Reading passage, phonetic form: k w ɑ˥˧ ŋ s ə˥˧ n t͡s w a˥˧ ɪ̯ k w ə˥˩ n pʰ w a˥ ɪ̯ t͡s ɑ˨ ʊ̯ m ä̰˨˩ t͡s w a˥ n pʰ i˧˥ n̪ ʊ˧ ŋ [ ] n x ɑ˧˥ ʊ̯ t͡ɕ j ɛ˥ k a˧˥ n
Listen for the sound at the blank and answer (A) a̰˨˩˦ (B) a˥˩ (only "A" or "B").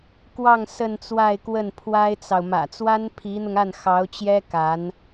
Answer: B